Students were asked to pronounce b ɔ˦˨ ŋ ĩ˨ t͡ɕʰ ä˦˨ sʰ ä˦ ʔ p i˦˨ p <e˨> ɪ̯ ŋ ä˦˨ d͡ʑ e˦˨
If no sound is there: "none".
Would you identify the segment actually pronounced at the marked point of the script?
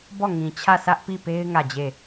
e˦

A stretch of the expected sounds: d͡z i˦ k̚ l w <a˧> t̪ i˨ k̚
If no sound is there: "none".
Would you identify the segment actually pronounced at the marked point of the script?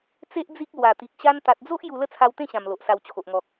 a˨˩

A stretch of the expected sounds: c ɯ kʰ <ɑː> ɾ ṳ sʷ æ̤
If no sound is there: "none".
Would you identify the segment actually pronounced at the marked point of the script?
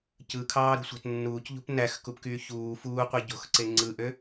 ɑː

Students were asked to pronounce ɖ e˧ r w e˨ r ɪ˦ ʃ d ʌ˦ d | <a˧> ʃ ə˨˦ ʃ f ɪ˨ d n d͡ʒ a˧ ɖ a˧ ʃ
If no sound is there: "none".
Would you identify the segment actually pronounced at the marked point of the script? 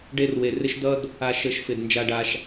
a˨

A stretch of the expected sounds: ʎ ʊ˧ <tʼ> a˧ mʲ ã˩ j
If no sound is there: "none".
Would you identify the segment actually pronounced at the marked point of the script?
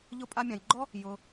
pʼ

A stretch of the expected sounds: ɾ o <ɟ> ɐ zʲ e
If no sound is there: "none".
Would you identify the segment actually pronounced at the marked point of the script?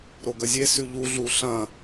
ɡ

